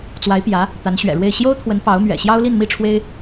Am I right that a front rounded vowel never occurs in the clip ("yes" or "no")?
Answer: yes